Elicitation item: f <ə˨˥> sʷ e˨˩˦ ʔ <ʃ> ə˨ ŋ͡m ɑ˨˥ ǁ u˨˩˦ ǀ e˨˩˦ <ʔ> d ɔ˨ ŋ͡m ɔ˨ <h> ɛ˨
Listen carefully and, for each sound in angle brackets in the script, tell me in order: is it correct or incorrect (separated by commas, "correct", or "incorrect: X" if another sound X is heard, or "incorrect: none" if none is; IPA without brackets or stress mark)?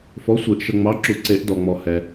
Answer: incorrect: ɔ˨˥, correct, correct, correct